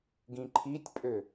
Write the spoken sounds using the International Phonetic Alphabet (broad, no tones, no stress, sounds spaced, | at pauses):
ɡ ĩ ǃʰ i tʲ pʼ ø